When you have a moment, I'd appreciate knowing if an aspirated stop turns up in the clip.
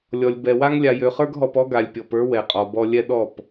no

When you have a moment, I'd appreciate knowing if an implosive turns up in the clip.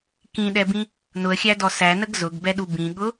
yes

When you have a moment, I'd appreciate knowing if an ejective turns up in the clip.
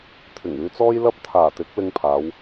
no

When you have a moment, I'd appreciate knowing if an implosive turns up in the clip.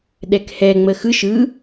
yes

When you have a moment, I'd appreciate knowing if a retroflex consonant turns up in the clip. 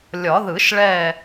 yes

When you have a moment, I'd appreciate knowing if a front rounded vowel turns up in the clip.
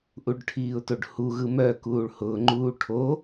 yes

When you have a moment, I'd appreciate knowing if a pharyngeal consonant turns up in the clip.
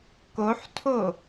yes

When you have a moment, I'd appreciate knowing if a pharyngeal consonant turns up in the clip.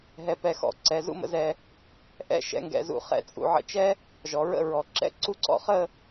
yes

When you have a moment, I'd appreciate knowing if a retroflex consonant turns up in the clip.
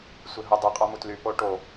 yes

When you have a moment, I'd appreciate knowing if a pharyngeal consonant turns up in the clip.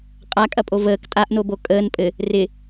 no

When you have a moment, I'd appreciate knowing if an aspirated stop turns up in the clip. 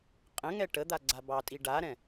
no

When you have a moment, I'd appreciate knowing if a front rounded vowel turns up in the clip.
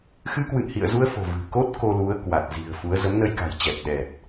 no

